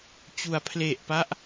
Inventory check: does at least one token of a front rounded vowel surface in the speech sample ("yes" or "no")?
no